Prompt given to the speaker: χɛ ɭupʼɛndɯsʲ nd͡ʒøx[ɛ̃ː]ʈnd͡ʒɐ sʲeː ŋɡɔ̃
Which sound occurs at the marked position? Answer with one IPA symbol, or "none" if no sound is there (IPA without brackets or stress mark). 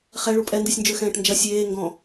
ɛ̃ː